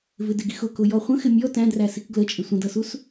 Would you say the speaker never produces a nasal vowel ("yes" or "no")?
no